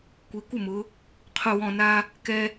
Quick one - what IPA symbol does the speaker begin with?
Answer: kʷ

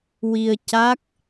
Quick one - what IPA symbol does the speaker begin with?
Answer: w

